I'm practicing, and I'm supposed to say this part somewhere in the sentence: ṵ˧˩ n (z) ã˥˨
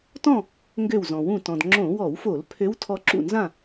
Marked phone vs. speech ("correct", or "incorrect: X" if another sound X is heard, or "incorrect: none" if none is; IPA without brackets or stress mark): correct